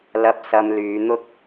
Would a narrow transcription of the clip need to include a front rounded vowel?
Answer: yes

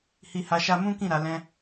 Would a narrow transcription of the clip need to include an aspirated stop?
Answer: no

